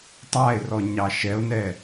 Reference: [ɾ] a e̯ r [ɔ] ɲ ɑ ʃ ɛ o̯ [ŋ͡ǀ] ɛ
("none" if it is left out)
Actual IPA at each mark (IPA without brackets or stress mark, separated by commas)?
tˤ, ɔ, n